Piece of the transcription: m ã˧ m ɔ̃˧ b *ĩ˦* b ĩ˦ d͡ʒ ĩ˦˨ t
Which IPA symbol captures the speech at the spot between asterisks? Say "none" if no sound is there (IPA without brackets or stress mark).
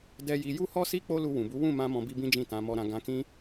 i˦